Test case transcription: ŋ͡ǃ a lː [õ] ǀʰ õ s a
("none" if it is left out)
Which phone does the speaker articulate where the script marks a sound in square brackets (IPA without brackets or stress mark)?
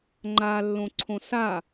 õ